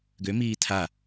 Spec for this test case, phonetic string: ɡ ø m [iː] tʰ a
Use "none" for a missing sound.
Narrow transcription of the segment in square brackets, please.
iː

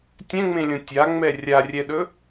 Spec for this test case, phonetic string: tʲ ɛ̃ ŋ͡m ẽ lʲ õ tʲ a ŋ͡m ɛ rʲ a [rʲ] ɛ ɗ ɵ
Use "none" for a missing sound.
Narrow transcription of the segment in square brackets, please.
rʲ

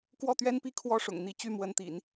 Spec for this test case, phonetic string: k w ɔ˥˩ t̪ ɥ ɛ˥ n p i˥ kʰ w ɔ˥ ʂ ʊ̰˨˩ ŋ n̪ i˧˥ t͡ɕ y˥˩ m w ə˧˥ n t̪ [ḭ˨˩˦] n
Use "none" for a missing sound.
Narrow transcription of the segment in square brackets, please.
ḭ˨˩˦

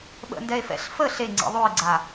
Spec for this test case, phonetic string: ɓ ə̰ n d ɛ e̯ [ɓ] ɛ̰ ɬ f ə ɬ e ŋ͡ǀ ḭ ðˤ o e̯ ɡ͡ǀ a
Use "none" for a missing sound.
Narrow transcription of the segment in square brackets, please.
f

